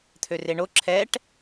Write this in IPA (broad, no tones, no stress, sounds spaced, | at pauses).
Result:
t̪ʰ ø r e ɳ o ǁʰ ɛ ʈ